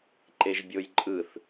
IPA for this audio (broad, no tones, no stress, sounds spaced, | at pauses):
ǃ e ʒ bʲ o j ǃʼ ɯ θ